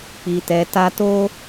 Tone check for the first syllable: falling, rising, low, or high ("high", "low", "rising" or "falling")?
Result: low